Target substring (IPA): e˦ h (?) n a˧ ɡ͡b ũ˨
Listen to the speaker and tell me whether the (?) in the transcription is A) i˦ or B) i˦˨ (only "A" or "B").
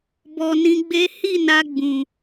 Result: B